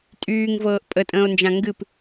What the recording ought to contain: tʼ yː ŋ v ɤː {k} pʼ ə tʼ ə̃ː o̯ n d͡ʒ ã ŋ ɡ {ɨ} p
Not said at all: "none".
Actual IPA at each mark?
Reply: ʔ, ɨ

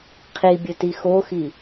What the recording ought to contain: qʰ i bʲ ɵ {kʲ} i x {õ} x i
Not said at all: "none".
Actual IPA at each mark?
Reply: t, o

